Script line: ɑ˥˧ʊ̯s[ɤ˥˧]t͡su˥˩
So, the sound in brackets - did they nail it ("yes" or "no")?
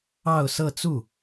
yes